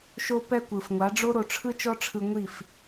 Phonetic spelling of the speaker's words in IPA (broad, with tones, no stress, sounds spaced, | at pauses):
ʃ o˧ p ɛ˧ kʷ ɯ˨ f ŋʷ a˨˦ ɖ͡ʐ o˦ ɾ o˧ ʈ͡ʂʰ ɯ˦ t͡ʃ ɔ˦ ʈ͡ʂʰ ɯ˧ ŋʷ i˦˨ f